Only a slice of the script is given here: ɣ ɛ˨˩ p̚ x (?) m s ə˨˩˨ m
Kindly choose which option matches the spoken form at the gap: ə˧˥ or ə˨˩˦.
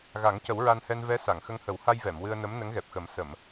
ə˨˩˦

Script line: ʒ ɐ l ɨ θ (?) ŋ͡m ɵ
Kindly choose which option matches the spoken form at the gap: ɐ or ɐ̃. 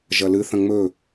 ɐ̃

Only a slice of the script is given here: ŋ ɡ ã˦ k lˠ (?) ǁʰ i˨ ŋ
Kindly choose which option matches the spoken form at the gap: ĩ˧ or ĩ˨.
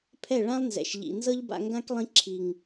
ĩ˧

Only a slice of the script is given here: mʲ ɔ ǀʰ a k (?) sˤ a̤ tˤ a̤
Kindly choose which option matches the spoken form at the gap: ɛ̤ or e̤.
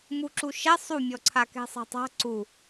ɛ̤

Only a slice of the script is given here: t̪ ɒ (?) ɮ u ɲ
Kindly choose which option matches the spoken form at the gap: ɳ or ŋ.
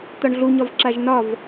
ɳ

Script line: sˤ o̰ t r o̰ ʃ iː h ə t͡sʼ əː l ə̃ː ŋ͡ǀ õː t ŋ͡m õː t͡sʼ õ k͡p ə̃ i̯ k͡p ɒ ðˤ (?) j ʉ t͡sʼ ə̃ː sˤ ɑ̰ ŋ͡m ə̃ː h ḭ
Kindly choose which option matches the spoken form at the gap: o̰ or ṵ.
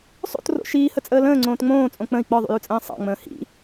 ṵ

